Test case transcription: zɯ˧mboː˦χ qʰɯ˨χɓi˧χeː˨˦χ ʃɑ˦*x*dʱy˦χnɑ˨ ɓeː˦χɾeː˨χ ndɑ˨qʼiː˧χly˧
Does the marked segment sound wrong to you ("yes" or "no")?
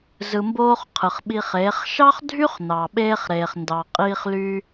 yes